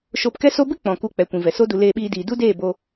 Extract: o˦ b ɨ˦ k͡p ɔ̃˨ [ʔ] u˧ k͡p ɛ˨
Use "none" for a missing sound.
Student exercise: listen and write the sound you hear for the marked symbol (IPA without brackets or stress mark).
k